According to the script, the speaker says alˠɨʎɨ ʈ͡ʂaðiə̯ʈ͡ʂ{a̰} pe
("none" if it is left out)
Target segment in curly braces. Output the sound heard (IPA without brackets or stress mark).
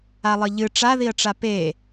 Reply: a